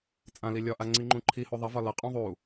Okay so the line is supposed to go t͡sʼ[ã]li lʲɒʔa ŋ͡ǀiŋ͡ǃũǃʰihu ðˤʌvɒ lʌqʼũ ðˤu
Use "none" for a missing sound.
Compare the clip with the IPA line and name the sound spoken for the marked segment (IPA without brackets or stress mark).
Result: ã